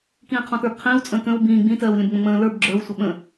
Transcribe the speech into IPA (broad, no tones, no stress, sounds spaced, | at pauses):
k ĩː qʰ ɔ̃ t ə˞ b qʰ ĩː w t͡sʼ ə̃ː k ə̃ː w b ĩː ɡ͡b ĩ t ɜː w lʲ ə̃ b ŋ͡m ə̃ ŋ͡m ə̃ː l ə˞ b ɡ͡ǁ ə˞ w sʷ ə ɓ ə̃